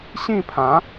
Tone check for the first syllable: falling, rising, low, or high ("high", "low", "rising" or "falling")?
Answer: falling